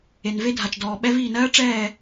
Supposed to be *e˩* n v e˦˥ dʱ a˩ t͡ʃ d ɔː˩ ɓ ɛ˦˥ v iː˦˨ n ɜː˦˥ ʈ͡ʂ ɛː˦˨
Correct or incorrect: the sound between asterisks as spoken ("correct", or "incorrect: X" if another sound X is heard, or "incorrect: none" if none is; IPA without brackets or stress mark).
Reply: correct